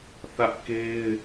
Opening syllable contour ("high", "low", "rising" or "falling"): high